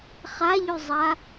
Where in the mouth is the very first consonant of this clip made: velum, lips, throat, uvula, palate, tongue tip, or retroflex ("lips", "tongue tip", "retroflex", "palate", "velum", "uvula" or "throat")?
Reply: uvula